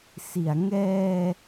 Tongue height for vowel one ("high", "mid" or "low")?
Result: high